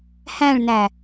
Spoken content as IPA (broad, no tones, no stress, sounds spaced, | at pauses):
h æ̃ ɭ n æ